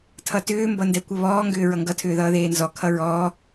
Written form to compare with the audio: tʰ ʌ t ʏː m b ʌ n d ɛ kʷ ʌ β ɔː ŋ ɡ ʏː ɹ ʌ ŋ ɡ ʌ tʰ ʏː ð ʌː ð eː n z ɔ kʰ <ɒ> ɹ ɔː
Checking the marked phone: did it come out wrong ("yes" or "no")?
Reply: yes